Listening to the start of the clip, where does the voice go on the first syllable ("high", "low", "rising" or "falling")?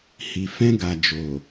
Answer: low